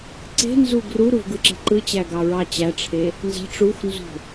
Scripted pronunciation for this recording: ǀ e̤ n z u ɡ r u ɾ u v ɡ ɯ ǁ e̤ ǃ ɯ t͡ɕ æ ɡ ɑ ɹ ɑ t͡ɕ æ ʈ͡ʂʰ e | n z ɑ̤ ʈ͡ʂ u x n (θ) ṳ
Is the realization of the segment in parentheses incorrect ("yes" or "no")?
yes